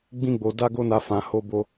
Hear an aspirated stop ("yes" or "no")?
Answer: no